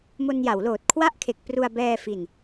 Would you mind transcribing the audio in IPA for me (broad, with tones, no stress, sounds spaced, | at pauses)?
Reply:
m o˧ n j a˩˦ w l oː˨˩ t̚ kʰ w a˥˩ ʔ kʰ e˨˩ k̚ p r u˧ a̯ b ɛː˧ f i˨˩ n